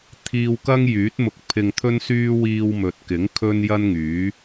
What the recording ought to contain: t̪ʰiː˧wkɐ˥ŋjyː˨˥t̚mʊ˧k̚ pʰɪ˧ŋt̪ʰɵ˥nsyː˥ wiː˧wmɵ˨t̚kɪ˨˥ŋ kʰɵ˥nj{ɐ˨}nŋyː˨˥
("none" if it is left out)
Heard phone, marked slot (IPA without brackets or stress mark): ɐ˥